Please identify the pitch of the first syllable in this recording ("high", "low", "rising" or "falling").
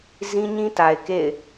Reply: high